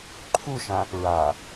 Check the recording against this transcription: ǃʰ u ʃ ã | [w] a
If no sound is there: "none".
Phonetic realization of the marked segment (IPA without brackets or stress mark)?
ɹ